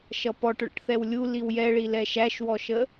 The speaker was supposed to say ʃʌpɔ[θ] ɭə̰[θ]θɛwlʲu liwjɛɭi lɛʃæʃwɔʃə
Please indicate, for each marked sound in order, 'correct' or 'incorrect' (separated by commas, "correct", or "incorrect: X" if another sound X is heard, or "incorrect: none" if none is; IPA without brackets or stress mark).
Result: incorrect: ʈ, incorrect: ʈ